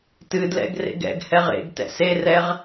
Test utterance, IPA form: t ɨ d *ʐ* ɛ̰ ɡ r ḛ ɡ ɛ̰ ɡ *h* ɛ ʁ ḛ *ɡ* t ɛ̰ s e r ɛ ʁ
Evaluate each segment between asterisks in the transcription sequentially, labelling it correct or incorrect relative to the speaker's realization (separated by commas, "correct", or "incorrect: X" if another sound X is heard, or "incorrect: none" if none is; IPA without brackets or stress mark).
incorrect: l, correct, correct